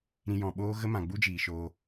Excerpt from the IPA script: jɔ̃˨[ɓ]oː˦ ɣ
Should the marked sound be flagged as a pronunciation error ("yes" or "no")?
no